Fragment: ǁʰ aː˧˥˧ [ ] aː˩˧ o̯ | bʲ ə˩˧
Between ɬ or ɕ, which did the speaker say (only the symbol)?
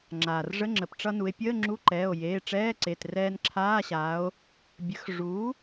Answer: ɕ